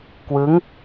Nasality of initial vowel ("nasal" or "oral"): oral